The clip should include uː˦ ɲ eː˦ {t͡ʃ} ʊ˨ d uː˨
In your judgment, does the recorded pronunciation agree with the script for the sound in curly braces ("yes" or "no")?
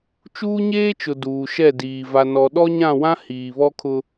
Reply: yes